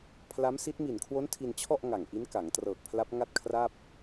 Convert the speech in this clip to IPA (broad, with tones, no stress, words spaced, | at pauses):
pʰla˦˥m si˦˥t̚ mi˨˩nkʰwo˦˥n tʰi˧nt͡ɕʰɔ˥˩ʔ ŋa˨˩ŋʔi˦˥nka˩˦ŋ trɤː˨˩k̚pʰla˦˥p̚ ŋa˥˩t̚kʰra˥˩p̚